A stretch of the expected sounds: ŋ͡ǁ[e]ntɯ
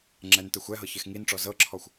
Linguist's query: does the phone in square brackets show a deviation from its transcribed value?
yes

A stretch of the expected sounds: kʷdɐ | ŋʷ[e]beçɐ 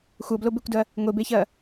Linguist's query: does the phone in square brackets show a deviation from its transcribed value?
no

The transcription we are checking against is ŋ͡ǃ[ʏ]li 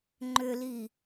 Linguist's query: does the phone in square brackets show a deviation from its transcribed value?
no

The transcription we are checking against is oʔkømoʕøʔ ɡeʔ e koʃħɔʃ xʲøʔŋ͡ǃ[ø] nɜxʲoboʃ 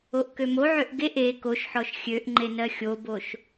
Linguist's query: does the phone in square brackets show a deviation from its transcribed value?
yes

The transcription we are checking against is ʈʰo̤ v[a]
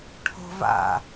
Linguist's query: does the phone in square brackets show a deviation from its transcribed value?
yes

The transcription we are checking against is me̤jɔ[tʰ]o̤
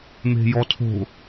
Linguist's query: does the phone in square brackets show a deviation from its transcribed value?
no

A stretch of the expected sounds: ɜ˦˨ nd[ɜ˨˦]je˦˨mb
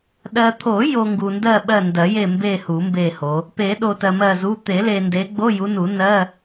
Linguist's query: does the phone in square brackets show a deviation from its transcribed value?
yes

